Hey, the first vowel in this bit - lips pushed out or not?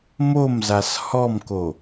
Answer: yes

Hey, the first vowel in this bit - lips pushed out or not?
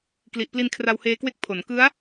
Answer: no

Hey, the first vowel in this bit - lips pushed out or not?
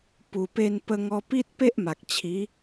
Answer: yes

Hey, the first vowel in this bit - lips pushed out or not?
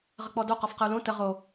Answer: no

